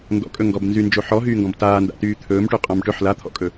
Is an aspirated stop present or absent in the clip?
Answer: present